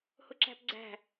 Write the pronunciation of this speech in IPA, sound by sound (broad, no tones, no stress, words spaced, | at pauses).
hʊǁæ̤pɡ͡ǀæ̤